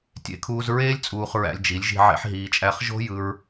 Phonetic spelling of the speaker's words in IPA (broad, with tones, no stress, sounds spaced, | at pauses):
tʲ ḛ˧ kʰ uː˧ z ɹ eː˦ lʲ t͡sʼ uː˧ χ ɹ æ̰˧ lʲ d͡ʒ i˨˦ lʲ ʒ i̤˧ ʕ ḛ˦ ħ ɦ iː˧ t͡ʃʼ æ˦ χ ʒ o̤˦ j ɯ˧ ɹ